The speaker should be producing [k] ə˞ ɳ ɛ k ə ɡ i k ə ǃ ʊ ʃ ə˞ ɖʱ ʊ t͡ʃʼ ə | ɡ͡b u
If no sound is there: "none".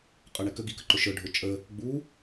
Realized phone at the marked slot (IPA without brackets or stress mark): qʼ